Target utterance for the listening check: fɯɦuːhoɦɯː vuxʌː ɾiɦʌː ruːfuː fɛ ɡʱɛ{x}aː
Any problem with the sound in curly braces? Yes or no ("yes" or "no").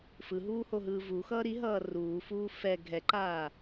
yes